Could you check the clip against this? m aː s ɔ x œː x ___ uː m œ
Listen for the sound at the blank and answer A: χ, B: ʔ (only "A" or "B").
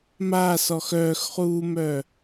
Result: A